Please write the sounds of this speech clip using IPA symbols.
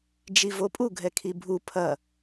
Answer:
d͡ʒ i v o pʼ u ɡʱ ɛ kʰ i bʱ u pʰ ɐ

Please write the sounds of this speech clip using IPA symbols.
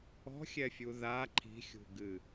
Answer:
ɔ̤ xʲ ɛ fʲ u ð a ǃʰ i̤ xʲ ṳ ɡ ɨ

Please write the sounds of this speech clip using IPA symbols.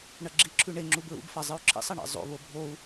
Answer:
ɳ ɐ ɡ͡ǁ i ǁʰ ʉ ɳ e ŋ͡ǁ u b ɹ ṵ b f a zˤ ɨ u̯ ǁʰ ḭ sˤ ɐ ɳ ḛ zˤ o̰ β o bʱ o u̯

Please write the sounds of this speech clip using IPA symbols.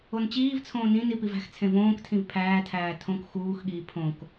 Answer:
o n t͡ɕ iː v t͡sʰ õː n ĩ n i p i v æ̤ x t͡sʰ ẽ v õː k tʰ ĩ v pʰ æː tʰ æː tʰ õ k x uː x ɠ iː pʰ õ k

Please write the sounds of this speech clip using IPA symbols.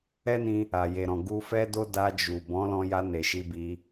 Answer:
ɛ˦ n ĩ˧ | a˨ j e˨ ɾ ɔ̃˨ ɡ u˧ f ɛ˦ d o˦ d a˧ d͡ʒ u˨ b ɔ̃˨˦ l ɔ̃˧ j a˧ n e˨ ʃ i˧ b i˧

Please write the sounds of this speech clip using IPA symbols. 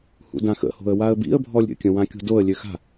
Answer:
h ṵ d ã x ə̰ h o̤ ə̯ w a ə̯ b ḭ ə̯ bʱ ɔ lʲ ɾʲ ə̰ kʲ ə̃ w ã kʲ o̤ d o ə̯ lʲ ø x a̤

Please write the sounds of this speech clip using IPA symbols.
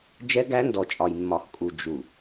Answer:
d͡ʒ ɛ˦ ɡ æ˦ n d ɔ˨ t͡ʃʼ ɒ˨ j mː ɒ˨ x kʼ u˨ d͡ʒ u˨

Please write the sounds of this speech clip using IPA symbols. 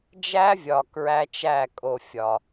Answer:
d͡ʒ æ˦ vʲ ɒ˨ k ɹ æ˦ t͡ʃ æ˦˨ kʼ o˨ fʲ ɒ˨

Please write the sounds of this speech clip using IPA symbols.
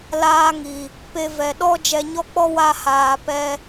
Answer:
l aː˧ ŋ i˨ | p e˧ v ɛ˨ ɗ ɔ˦ d͡ʒ ɛ˧ ɲ ɔ˦ k͡p ɔ˦ w a˦ h aː˧ p ɛ˦

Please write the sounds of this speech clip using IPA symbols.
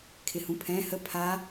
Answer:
kʰ ɪ h ũ pʰ ɛ̃ h ə pʰ a

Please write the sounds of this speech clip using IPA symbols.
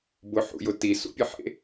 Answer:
b ʊ ħ ṵ j ʊ t i s ṵ pʲ ə ħ ḛ

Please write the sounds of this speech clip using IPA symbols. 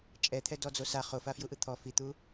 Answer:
t͡ʃʼ ɛ t̪ʰ ɛ d ɔ d͡z o s a χ o f a f j u ʔ ɯ t̪ʰ ɔ f i t̪ u

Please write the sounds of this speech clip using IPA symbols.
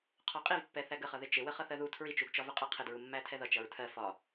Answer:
qʰ ɒ qʼ i v pː ɛ θ æ ɡ ə χ ʌ ð ɪ t͡ʃ ɪ w ə χ ʌ θ ɜ ð u tʰ ɹ i t͡ʃ u ɡ t͡ʃ ɒ v ə qʼ ʌ qʰ ɪ d ɹ u mː æ tʰ ɛ ð ʌ t͡ʃ ʌ ɹ tʰ ɜ f ɒ

